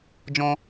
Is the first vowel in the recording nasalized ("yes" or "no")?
yes